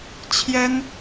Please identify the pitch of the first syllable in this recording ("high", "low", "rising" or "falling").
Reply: high